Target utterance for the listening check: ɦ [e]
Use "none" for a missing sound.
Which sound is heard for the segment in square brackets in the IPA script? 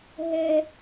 ɛ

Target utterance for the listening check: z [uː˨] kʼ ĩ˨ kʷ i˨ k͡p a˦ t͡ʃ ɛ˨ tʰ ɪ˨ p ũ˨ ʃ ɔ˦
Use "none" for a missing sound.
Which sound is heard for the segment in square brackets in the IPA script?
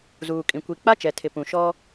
uː˨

